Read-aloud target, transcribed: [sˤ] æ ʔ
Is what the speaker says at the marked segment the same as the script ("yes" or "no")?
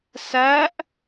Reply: no